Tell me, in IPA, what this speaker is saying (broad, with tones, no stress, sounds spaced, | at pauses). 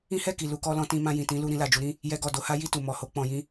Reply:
ĩ˦ h ɛ˦˨ k i˨ l u˧ k ɔ˧ l ɔ̃˧ t ĩ˧ m ã˧ j ĩ˨ t ĩ˨˦ l u˧ ɾ ĩ˧ l a˨ d͡ʒ u˧ ɾ ĩ˦ | j ɛ˧ ɡ ɔ˨ d o˨˦ h a˦ j i˦˨ t u˨ m ɔ˨ h o˧ k͡p ɔ̃˨ j ĩ˧